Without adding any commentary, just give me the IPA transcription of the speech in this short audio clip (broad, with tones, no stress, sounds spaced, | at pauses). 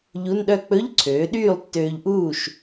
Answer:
ʎ u˧˥˧ n ɗ œ˥˨ k͡p ɵ˧˥˧ ʎ ǀʰ øː˩˥ ɗ yː˥˨ lˠ tː øː˧ ʎ ʔ uː˥˨ ʃ